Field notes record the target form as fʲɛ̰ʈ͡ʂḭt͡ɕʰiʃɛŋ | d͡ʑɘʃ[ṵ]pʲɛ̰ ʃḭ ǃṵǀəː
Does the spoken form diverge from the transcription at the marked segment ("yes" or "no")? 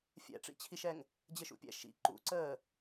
no